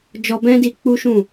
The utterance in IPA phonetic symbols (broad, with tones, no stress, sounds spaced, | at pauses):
d͡ʒ ɔ˧ b ɛ̃˦ d i˧ k͡p u˦ ʃ ũ˦˨